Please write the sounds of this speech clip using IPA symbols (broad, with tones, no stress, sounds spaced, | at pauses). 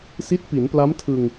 s i˦˥ t̚ p i˩˦ n p l a˦˥ m tʰ ɯ˧ ŋ